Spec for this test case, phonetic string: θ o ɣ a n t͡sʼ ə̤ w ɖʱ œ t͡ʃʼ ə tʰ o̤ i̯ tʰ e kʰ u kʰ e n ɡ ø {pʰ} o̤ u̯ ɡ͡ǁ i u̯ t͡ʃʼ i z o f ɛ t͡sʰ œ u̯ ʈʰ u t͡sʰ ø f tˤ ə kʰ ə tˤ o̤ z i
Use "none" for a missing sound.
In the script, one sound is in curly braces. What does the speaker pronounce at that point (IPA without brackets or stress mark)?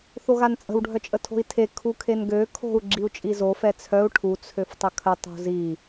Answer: kʰ